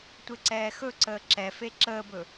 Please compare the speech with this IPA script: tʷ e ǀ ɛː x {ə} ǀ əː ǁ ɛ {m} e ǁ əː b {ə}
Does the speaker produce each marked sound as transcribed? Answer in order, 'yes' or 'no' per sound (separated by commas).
no, no, no